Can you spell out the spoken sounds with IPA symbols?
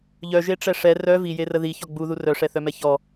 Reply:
ʎœʒeʈ͡ʂɛ ʂɛ rœ vijerə ðiçɔ ɡ͡buðu rœʂɛθœmɛ çɔ

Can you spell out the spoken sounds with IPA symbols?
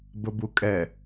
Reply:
bəbukʼɛ

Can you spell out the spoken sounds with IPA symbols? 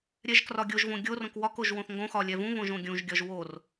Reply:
ɾʲɛʒkrɒɡʲoʒvõ ɡʲo rõkwɒkoʒ wõθŋɡõxɒ lʲɛvũβõʒ õɡʲũʒɡʲɒʒ wor

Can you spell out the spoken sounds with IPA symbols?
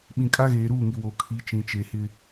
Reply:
ɓĩ˨ kʼa˦ɣeː˨ɾuː˦˨ŋi˨ wo˨ kʰi˨˦t͡ʃĩ˨t͡ʃe˨hɪ˦

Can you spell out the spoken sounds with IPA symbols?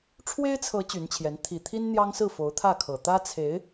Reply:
ʈ͡ʂʰwe˥ɪ̯t͡sʰɤ˧˥ t͡ɕy˧˥nt͡ɕʰjɛ˧˥n t̪ʰi˨˩t̪ʰi˥n n̪jɑ˥ŋsɹ̩˥˩ fo˧˥ʊ̯t̪ʰä˥˩kʰɤ˨˩ t̪ä˥t͡sʰe˧˥ɪ̯

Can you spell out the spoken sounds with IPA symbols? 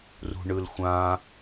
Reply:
rṳɳɯlxʷã

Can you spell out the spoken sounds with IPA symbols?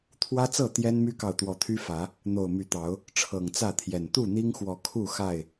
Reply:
t̪ʰwä˦t͡sɤ˥˨ t̪jɛ˦nmy˦kɑ˨ʊ̯ t̪wɔ˨˦t̪ʰy˦fä˨˦ | n̪o˨˩ʊ̯my˨˦t̪ɑ˨˦ʊ̯ | ʈ͡ʂʰɤ˨˩ŋt͡sä˥˨t̪ʰjɛ˨˩n t̪u˥˨n̪i˦ŋxwɔ˨˦ kʰu˥˨xa˥˨ɪ̯

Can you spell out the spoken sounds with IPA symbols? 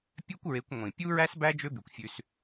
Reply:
pʲœ˦kʷɹe˨˦kʷ ŋʷĩ˨ pʲu˦ɹæ˦sbæ˦ d͡ʒø˦by˨kʷ fʲʉ˦s

